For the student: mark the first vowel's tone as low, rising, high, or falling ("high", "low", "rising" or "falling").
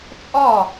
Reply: falling